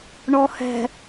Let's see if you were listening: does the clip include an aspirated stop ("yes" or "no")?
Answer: no